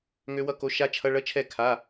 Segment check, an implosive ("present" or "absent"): absent